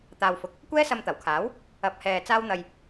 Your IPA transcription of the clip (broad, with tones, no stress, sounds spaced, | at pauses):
t̪ aː˨ w f ʊ˨˥ k̚ | kʷ ɛː˥ s ɐ˧ m t̪ ɐ˨˩ w kʰ aː˨˥ w | ɐ˨ p̚ h ɛː˨ t͡s aː˥ w n̪ ɐ˧ j